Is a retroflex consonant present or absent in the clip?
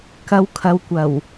absent